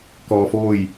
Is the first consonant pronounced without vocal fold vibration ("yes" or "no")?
yes